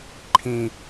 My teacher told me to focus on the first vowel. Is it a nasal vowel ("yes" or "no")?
yes